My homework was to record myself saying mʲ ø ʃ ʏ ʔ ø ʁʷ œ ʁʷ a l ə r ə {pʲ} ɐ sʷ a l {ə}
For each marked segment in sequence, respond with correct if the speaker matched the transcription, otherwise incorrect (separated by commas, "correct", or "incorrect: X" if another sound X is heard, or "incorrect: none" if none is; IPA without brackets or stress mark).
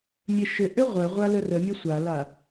incorrect: mʲ, incorrect: a